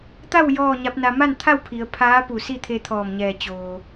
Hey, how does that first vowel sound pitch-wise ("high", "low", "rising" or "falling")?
falling